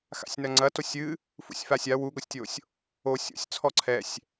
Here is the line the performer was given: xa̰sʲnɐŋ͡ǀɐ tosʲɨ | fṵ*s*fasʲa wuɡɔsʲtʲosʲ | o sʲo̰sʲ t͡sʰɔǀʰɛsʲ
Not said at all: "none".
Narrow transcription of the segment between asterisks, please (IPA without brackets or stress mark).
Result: sʲ